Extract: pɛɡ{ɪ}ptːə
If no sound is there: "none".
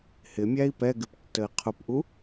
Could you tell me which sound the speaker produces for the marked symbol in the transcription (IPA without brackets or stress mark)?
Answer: ɪ